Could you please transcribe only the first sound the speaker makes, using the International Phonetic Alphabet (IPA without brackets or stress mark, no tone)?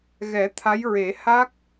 ɣ